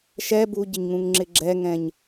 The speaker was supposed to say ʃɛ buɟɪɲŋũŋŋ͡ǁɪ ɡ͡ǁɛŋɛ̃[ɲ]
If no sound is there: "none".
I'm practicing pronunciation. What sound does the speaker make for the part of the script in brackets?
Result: ɲ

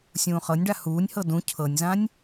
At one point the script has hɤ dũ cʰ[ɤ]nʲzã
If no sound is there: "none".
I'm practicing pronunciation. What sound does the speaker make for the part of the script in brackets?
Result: ɤ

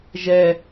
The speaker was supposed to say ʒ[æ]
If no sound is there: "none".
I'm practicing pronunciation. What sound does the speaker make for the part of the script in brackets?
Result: ɛ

